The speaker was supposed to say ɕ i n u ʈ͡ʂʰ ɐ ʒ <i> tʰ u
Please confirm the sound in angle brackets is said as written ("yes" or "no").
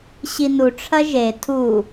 no